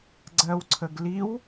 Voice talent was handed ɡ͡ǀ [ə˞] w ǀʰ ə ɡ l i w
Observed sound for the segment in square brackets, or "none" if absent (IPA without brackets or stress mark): ɜ